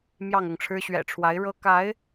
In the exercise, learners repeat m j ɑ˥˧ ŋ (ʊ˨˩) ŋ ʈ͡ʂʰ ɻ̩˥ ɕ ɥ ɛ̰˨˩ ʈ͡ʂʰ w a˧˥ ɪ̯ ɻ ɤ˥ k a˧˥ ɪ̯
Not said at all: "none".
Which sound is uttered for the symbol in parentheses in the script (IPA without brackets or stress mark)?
ʊ˥˩